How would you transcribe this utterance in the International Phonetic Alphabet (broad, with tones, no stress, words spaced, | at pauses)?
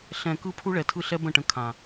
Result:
ɬɛ̃˨ kɯ˦pʰu˦ɭɛ˨tʰɯ˦˨ ɬɛ˦bə̃˦˨ ʈə̃˦kʰã˨